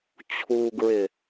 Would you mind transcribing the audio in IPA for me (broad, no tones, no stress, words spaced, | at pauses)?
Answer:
t͡ɕʰuɡɹɪ